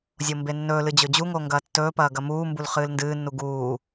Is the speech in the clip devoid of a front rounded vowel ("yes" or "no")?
yes